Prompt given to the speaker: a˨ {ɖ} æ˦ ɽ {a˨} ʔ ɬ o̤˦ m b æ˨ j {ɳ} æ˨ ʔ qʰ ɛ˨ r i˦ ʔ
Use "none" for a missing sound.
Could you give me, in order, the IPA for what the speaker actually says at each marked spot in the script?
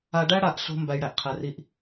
ɖ, a˨, ɽ

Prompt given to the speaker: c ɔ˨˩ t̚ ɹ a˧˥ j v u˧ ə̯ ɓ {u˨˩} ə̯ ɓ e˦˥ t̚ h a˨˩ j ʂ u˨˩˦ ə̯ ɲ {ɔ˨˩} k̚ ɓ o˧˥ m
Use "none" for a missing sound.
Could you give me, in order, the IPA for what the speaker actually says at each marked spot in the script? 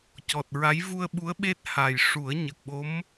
u˧˥, ə˨˩

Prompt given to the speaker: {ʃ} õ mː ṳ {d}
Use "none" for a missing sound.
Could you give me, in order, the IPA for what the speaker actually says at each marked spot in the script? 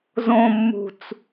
z, t͡s

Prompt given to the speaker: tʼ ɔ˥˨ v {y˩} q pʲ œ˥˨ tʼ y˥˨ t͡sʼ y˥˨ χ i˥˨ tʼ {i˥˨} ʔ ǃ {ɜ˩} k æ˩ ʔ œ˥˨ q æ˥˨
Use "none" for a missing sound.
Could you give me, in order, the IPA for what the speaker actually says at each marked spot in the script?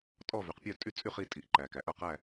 y˩, i˩, æ˩

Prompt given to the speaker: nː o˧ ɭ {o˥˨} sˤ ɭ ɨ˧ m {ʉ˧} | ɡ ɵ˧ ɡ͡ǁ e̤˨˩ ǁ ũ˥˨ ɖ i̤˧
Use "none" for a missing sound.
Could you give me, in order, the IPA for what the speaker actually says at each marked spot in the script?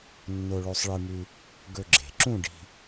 o˧, ʉ˧

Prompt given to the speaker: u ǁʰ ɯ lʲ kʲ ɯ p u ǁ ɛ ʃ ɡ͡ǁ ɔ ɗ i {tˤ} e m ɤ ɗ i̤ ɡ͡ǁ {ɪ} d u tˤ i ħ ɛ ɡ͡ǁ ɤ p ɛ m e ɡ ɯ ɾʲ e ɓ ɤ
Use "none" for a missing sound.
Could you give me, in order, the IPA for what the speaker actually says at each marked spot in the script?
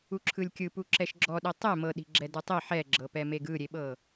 tˤ, ɛ

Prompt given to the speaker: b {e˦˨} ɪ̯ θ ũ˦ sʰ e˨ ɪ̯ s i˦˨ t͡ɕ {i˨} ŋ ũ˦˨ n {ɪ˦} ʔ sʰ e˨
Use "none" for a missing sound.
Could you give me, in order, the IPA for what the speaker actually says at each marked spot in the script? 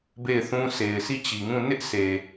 e˦˨, i˨, ɪ˦

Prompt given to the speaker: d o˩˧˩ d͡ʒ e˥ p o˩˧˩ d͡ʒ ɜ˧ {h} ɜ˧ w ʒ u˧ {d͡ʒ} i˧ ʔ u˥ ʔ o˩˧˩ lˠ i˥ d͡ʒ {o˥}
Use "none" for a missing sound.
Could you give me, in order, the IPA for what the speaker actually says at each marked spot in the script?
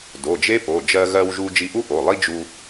ɣ, d͡ʒ, u˥

